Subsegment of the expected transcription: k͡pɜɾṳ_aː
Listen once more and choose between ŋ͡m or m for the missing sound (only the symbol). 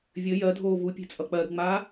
ŋ͡m